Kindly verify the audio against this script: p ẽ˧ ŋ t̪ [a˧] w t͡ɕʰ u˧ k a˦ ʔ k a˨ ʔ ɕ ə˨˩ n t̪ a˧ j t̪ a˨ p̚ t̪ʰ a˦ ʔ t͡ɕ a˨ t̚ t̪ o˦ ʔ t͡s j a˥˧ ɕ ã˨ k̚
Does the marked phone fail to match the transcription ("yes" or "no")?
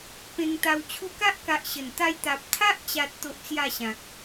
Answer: no